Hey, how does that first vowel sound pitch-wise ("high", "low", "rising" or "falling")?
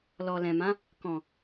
low